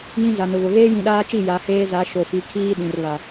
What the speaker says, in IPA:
j ĩ˦ z a˨ n ʊ˨ β ʊ˨ ɣ eː˦ j ĩ˨ ɗ aː˦ t͡ʃ i˦˨ j a˨˦ h eː˦ z a˨˦ ʃ o˨ f i˨˦ kʰ iː˦ ɗ ĩ˨ r β a˨

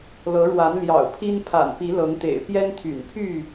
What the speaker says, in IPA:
l ɤ˨˦ ɻ w a˨˦ n l j ɑ̰˨˩ ʊ̯ pʰ i˦ n pʰ a̰˨˩ n p i˨˦ l ɤ˨˦ ŋ t̪ ḛ˨˩ ɪ̯ p j ɛ˦ n t̪ʰ y̰˨˩ n pʰ y˥˨

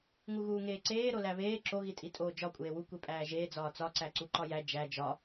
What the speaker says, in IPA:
ŋ u ɣ uː ŋ eː ǀ eː ɾ o l æ β eː ǁ o ɣ i tʼ i tʼ oː d͡ʒ ɒ kʷʼ eː w u kʷ e pʼ æː ʒ eː d͡z ɒː t͡s ɒ ǀ æ ǀ u ǃ ɒ j æ d͡ʒ æ d͡ʒ ɒ

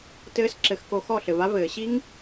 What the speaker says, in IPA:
t ɘː˧ s ǁ ɘ˨ x k o˧ x ɔ˦˨ ɬ ɘ˨ v a˦ v ɘː˨ ɕ i˦ ŋ

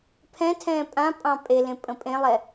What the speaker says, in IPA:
pʰ ɛ̃ tʰ ɛ̃ː pʼ ã pʼ ɑ̃ pʼ e l ẽ pʼ ə̃ pʼ ẽ lˠ ɛ

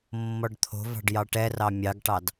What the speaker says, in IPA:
mː ɔ ɖ t̪ʰ o̤ v ɑ̤ ɖ j ɑ ʈ ɛ r ɑ mʲ ɑ ɡ ʈ ɑ d

